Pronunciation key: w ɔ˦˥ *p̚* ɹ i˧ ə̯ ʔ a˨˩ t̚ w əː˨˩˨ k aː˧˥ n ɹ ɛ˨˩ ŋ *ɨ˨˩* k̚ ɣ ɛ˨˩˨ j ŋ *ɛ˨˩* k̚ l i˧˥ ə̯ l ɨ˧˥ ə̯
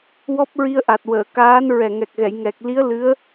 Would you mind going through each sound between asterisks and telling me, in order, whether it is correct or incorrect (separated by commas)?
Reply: correct, incorrect, correct